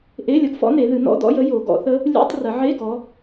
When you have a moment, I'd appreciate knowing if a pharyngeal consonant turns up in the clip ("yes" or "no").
yes